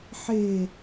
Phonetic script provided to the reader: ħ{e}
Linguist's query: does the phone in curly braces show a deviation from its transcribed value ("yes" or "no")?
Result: no